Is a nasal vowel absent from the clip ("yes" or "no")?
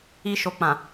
no